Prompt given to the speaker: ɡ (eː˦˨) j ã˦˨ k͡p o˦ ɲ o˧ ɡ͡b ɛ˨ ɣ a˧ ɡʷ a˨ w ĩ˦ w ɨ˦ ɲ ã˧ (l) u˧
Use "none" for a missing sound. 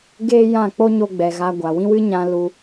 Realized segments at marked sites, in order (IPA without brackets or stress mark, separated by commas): eː˦, l